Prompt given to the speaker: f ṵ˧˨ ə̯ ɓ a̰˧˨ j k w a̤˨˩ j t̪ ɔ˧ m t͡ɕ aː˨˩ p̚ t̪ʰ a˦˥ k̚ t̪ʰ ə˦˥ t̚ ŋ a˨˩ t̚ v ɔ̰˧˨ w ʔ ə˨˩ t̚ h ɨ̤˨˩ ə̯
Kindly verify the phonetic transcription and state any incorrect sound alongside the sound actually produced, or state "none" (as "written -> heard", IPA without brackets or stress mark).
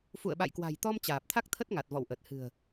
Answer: none